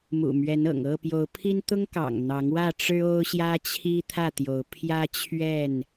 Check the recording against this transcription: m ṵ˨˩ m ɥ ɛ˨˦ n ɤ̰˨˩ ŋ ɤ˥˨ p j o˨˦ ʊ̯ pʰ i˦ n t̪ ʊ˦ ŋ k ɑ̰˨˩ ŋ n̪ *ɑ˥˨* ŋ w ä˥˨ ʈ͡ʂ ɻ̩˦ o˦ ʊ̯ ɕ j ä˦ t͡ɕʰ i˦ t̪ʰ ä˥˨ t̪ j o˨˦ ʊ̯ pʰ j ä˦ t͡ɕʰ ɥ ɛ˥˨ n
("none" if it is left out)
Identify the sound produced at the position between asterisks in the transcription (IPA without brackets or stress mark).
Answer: ɑ˨˦